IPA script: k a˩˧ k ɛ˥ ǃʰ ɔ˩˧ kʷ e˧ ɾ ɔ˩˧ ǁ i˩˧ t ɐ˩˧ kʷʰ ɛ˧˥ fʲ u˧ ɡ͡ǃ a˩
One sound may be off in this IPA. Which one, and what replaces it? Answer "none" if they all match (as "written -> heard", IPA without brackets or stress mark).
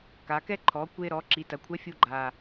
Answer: none